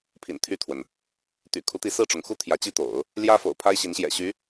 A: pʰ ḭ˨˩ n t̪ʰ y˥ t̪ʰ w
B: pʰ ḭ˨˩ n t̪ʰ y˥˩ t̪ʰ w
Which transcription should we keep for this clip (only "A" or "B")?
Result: B